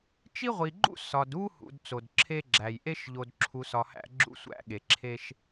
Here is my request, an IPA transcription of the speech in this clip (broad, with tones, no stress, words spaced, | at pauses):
t͡ʃi˥ʁʷi˨ɡ͡ǃṵ˥ sɒ˨du˥hṵ˨d t͡so˩dǁʰe˦ɡ͡ǁæ˩jʔe˥ʃ ʎo˨dǁʰu˨sɒ˨hæ̰˦ ɡ͡ǁṵ˥sʷæ̰˥ɠe˩ǁʰe˥ʃ